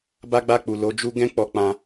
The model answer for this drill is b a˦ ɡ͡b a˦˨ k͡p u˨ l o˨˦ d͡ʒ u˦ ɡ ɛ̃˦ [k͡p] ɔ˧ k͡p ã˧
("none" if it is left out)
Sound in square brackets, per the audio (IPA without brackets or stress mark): k͡p